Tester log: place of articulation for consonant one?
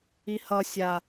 glottal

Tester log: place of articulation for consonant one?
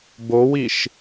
labial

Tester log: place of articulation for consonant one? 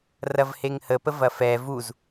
alveolar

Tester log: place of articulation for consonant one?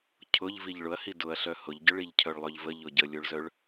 palatal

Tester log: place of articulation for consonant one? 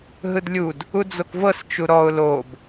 glottal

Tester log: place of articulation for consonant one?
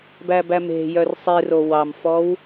labial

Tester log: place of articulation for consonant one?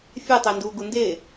labial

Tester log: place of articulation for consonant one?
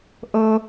glottal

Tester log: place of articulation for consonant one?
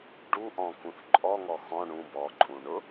retroflex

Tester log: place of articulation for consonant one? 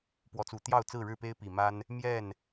labial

